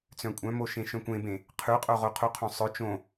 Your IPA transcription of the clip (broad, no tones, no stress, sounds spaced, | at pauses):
t͡s œ̃ kʷʼ œ̃ m o ʃ ẽ ʃ œ̃ kʷ ẽ b ẽ | qʰ ʉ qʼ o ʁ o qʰ u qʰ õ sˤ œ t͡ʃ õ